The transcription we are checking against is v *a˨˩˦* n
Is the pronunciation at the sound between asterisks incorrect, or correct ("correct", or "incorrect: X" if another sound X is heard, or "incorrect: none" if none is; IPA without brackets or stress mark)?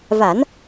correct